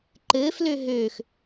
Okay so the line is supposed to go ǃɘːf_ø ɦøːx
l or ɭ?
l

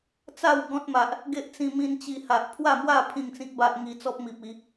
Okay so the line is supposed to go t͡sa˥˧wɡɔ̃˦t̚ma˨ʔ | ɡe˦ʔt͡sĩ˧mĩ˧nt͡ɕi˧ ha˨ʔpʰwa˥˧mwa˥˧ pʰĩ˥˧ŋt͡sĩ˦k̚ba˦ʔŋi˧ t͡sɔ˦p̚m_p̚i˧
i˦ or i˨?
i˨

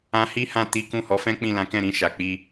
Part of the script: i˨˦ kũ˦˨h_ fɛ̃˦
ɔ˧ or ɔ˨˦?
ɔ˨˦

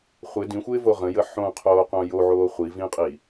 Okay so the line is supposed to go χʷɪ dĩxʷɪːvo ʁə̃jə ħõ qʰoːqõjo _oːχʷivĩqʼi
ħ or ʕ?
ʕ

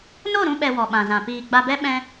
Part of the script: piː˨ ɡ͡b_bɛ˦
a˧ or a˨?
a˧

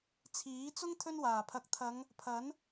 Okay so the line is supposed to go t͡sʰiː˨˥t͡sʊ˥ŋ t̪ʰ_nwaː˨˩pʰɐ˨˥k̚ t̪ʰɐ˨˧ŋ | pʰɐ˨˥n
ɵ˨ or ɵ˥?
ɵ˥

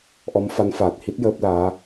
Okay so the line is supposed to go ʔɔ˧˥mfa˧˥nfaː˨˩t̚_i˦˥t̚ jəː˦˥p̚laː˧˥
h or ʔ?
h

